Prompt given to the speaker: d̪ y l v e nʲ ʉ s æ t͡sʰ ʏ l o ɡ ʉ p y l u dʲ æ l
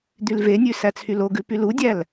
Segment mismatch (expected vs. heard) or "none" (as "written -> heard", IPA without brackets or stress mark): ʏ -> y